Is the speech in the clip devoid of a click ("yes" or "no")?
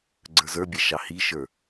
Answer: no